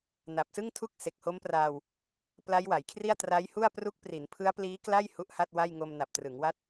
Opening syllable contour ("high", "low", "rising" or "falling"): low